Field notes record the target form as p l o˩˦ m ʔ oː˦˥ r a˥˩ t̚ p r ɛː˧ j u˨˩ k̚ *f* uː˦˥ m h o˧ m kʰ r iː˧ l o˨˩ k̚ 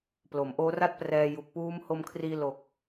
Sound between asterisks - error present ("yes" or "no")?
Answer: yes